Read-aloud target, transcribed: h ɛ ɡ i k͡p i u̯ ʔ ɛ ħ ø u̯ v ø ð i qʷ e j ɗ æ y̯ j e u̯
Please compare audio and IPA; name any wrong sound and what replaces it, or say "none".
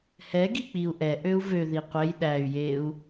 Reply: ħ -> ʔ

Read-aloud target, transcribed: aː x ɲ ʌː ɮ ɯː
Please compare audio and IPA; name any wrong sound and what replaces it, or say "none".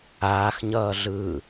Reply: none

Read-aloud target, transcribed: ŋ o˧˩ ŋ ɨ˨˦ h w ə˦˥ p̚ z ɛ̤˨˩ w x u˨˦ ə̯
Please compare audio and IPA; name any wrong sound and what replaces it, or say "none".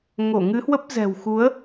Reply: none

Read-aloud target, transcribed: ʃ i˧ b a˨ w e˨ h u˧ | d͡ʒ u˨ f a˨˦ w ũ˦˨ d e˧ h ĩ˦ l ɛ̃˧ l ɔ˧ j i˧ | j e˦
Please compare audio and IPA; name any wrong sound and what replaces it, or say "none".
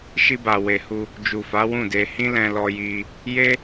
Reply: none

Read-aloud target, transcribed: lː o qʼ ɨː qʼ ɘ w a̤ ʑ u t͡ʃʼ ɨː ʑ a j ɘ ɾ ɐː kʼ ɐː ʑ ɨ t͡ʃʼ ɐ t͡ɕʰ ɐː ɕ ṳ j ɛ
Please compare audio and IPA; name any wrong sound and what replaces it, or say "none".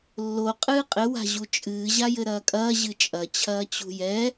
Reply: ɕ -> t͡ɕ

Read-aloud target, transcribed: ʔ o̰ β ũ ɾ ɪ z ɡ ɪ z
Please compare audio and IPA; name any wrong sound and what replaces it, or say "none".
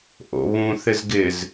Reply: ɾ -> θ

